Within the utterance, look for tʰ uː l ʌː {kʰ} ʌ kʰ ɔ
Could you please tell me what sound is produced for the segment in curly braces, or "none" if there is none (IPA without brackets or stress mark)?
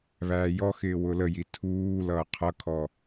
qʰ